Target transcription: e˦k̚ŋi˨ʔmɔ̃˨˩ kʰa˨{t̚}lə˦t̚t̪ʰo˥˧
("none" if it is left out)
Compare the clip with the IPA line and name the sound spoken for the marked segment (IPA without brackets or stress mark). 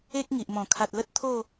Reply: t̚